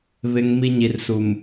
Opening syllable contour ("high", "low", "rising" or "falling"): low